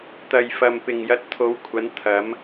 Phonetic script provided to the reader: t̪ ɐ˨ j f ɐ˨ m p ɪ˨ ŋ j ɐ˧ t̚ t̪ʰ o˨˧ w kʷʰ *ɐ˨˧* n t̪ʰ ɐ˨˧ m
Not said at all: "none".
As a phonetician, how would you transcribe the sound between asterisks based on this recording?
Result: ɐ˨˧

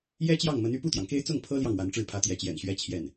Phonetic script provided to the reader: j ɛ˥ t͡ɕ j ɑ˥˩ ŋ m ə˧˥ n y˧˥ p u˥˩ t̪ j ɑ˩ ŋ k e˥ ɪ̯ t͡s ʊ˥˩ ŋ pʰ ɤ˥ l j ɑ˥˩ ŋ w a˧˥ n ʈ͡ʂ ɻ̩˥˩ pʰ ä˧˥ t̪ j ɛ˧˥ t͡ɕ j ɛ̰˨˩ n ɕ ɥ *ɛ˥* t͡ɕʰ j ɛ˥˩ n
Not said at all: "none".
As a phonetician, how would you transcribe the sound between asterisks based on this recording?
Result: ɛ˥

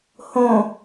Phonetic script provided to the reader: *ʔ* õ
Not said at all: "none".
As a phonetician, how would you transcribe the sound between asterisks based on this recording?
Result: h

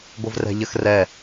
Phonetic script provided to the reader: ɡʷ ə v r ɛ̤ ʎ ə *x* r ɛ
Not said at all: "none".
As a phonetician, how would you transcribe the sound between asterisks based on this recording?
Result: x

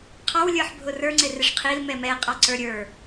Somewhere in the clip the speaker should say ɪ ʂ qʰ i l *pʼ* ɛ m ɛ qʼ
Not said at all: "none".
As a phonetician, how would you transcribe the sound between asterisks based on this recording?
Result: m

